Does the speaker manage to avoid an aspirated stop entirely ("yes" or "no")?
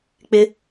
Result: yes